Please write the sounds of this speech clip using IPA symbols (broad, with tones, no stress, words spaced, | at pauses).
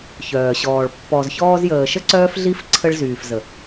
çœː˨ɕɔː˨ɭ pːɔ˨zçɔː˧zjəː˨ʃə˦ ǀœː˦fɮi˦f ǀʰə˧ɭzyː˨fzə˨